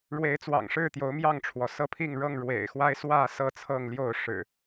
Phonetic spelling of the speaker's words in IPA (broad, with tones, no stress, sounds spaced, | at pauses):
ɻ w e˨˦ ɪ̯ t͡s w ɑ̰˨˩ ŋ ʂ ɻ̩˥˨ t̪ j o˨˦ ʊ̯ m j ɑ˥˨ ŋ ʈ͡ʂʰ w ɔ˩ s ɤ˦ pʰ i˥˨ ŋ ɻ ɤ˥˨ ŋ ɻ w ḛ˨˩ ɪ̯ x w a˦ ɪ̯ s w ä˥˨ s ɤ˥˨ t͡sʰ ɤ˥˨ ŋ l j o˥˨ ʊ̯ ʂ ɻ̩˨˩